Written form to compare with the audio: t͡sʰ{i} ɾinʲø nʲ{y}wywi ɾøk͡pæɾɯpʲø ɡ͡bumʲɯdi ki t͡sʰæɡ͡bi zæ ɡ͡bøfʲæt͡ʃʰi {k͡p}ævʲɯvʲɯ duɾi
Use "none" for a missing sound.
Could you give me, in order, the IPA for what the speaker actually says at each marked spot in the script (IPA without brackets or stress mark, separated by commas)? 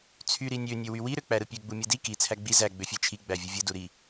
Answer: y, ø, ɡ͡b